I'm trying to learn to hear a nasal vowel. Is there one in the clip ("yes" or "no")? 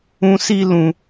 yes